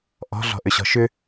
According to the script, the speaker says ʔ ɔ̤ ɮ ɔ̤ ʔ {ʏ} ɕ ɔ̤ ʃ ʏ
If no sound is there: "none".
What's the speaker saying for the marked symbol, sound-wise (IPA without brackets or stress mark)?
ʏ